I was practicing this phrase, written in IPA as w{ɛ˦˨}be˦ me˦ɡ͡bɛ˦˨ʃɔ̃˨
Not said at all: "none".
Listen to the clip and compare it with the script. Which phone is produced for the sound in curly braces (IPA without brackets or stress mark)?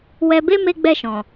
ɛ˧